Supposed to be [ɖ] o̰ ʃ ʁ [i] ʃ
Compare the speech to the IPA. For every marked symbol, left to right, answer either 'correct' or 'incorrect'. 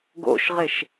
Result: incorrect, incorrect

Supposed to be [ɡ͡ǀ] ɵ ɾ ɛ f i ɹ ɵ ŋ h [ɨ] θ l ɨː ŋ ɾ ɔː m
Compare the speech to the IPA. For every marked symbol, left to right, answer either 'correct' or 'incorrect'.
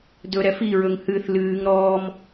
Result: incorrect, correct

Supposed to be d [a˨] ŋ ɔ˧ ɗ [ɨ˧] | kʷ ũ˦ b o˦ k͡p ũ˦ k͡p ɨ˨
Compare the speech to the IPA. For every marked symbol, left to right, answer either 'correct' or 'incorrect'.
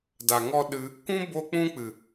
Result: correct, correct

